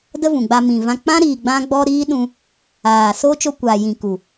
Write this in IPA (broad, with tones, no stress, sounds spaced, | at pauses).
d ə˧ v ũ˨ ɡ͡b a˧ m ĩ˨ v ã˧ k͡p ã˦ ɾ iː˨ ɡ͡b ã˧ ɡ͡b ɔ˧ ɾ iː˦ ɗ ũ˧ | aː˨ s oː˦ t͡ʃ o˧ kʷ aː˨ j ĩ˨ k u˨